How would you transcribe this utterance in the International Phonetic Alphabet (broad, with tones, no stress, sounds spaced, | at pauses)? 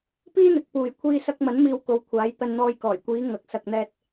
p iː˥ n̪ ɪ˨˥ k̚ p uː˨ j kʷʰ iː˧ s ɐ˧ k̚ m ɐ˨˥ n m iː˧ w k o˨˧ w kʷʰ aː˨˥ j t̪ ɐ˧ n n̪ ɔː˧ j k ɔː˨˩ j kʷ iː˨˧ ŋ ɐ˨ k̚ s ɐ˨ k̚ n̪ ɛː˧ t̚